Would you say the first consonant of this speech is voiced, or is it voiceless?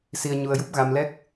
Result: voiceless